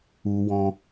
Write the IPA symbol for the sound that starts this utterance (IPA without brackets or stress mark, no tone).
u